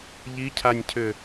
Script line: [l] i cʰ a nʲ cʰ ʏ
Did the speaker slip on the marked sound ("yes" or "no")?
yes